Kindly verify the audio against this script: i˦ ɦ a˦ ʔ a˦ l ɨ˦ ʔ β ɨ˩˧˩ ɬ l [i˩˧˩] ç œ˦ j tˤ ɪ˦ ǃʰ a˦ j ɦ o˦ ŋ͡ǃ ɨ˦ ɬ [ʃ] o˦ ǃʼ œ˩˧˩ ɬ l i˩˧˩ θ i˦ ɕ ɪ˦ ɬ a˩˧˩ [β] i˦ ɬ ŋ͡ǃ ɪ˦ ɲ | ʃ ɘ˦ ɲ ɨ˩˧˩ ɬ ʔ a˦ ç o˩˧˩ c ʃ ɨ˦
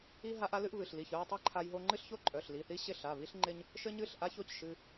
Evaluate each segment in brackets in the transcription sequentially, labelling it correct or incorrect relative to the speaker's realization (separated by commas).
correct, incorrect, correct